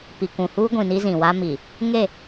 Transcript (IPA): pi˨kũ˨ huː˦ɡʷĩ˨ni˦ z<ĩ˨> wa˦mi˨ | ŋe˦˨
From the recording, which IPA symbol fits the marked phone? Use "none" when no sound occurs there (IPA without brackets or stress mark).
ĩ˨